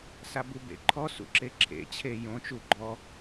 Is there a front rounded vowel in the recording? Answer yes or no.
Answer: no